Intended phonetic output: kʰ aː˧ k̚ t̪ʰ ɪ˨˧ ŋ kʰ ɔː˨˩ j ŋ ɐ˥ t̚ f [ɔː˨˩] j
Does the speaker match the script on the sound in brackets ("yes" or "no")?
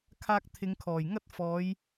no